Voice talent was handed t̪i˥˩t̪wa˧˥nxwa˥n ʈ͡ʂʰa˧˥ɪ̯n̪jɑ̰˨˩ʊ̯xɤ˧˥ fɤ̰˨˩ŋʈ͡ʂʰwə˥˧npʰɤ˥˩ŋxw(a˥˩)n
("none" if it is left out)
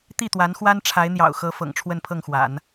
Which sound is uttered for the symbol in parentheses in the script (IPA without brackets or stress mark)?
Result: a̰˨˩˦